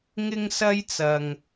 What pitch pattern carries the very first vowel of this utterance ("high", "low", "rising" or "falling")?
high